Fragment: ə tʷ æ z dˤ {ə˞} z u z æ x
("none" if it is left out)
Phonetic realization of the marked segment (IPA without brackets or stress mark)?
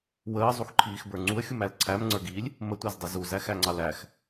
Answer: ʌ